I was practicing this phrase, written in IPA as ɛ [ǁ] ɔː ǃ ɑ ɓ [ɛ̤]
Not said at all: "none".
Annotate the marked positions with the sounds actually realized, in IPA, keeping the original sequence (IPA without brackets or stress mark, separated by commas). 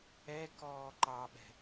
k, ɛ̤